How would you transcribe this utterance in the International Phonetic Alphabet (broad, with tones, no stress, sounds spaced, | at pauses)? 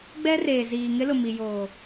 ɡ͡b ɛ˦ r eː˨ z iː˨ ŋ ɪ˦ l ʊ˨ m i˨ j oː˨